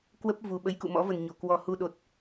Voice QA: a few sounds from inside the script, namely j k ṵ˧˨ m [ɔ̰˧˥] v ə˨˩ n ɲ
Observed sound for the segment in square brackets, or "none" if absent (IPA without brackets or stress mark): ɔ̰˧˥